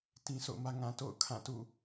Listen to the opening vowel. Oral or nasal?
nasal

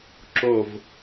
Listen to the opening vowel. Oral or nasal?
oral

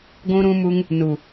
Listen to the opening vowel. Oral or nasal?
nasal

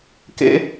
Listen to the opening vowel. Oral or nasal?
oral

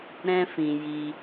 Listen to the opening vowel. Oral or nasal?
nasal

